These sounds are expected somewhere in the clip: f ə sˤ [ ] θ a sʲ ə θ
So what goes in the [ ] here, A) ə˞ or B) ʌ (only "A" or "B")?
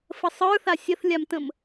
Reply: A